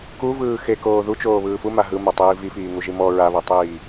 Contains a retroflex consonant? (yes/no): no